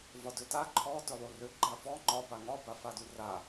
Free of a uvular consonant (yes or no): yes